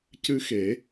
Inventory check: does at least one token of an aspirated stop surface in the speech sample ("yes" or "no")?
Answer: no